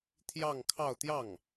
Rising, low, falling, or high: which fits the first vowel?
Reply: falling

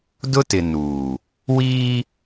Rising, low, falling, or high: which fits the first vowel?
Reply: high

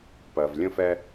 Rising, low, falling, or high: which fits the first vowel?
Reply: low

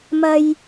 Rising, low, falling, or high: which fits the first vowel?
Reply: high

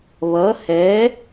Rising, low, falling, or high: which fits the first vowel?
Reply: rising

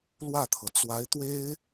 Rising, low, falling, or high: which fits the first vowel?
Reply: falling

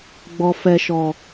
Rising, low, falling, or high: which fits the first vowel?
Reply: low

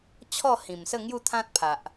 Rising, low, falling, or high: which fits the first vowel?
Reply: falling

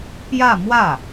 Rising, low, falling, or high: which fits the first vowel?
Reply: falling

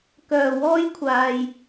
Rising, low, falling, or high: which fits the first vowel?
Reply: low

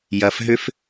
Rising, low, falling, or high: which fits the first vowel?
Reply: low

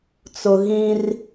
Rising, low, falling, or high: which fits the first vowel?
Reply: high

